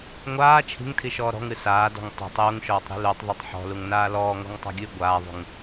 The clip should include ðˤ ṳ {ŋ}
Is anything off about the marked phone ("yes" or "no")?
no